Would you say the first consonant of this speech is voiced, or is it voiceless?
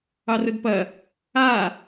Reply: voiced